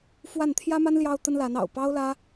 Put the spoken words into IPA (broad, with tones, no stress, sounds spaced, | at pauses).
f w a˥˩ n t̪ʰ j ä˥ m a˥ n l j ɑ˥ ʊ̯ t̪ ə˥ n l a˧˥ n ɑ̰˨˩ ʊ̯ p ɑ˥ ʊ̯ l ä˥